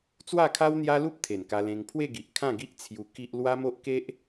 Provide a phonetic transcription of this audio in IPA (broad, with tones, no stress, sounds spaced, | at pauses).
t͡s w a˥˧ kʰ a˦ w n̪ j a˦ l u˦ p̚ t̪ʰ e˨˩ n k a˧ l ẽ˧ ŋ pʰ w e˥˧ ɡ i˨ ʔ kʰ ã˥˧ ɡ i˦ ʔ t͡sʰ j u˧ k i˦ ʔ l w a˦ m o˦ ʔ k e˦ ʔ